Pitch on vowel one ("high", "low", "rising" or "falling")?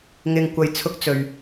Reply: low